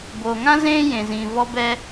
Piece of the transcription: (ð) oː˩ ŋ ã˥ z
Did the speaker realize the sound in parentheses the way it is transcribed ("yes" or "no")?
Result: no